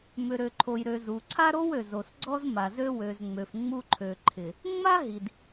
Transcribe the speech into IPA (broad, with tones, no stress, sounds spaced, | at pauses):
m ʏ˨ ɾ ø˨ ǃʰ o˨ j ɾ ø˨ z u˨ ǀʰ a˦ ɾ o˦ w ø˨ z o˨ s ɡ͡ǀ ɔ˦ z m a˨ z ø˦ w ø˨ z ŋ͡m ø˨ f ŋ͡m u˦ ǃʰ ø˨ ǃʰ ɪ˨ | ŋ͡m a˦ ɦ i˨ d